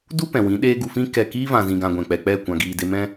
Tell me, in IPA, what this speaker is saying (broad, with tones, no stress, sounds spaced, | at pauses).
d u˦ p ɛ̃˨ w ĩ˨˦ ɗ eː˦ ɡ u˧ f ĩ˦ k ɛ˦˨ k iː˦ v ã˨ z ĩ˨ ɡ ã˨ ɡʷ ɛ̃˨ k͡p ɛ˨ k͡p ɛ˦˨ kʷ ã˨ ɡ iː˨ d e˧ m ɛ̃˦